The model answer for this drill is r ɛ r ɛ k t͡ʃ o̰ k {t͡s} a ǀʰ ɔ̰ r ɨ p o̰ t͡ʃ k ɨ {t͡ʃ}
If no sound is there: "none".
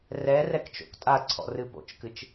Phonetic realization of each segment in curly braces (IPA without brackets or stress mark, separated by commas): tʼ, t͡ʃ